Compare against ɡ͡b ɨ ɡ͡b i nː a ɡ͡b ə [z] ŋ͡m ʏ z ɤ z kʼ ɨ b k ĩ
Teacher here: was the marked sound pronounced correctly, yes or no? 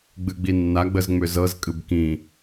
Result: yes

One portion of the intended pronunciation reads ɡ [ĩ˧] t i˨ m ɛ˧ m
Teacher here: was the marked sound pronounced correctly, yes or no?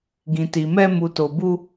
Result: no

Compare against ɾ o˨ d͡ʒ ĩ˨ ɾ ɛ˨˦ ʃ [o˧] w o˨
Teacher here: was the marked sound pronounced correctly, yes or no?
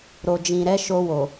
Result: yes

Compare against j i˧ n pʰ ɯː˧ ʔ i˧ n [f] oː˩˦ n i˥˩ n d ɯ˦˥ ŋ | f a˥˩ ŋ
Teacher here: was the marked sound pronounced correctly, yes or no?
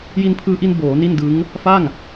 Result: no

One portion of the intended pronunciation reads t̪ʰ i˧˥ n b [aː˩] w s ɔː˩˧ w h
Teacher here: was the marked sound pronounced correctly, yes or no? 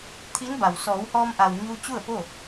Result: no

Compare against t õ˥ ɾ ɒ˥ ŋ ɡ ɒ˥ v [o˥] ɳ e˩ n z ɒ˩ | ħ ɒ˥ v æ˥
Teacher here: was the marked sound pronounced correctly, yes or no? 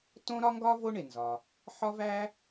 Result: yes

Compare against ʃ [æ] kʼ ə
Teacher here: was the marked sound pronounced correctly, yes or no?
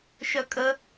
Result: no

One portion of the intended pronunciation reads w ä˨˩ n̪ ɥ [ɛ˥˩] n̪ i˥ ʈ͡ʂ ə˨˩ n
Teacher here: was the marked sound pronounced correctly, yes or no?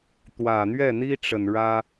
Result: yes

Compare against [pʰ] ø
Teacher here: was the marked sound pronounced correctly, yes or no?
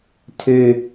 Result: no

